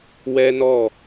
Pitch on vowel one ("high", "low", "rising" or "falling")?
high